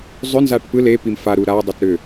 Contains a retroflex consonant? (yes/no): yes